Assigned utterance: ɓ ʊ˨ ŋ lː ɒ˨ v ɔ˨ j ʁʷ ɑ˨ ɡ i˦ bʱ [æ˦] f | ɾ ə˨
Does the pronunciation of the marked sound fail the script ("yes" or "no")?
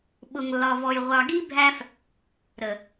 no